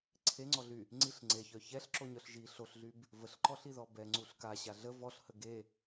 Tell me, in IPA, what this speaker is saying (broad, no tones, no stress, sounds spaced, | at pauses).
ǀʰ e ŋ͡ǀ ɔ ɮ y | ŋ͡ǀ i ɬ ŋ͡ǀ e ç œ ç ɛ ɬ ǁ o ɲ œ ɬ ʒ i ɬ o ɬ ɮ y b | v ə ɬ ǃ ɔ ɬ i ð ɔ b ɛ ŋ͡ǀ u ɬ k a ɕ a ɮ ə v ɔ ɬ h ə ɡ e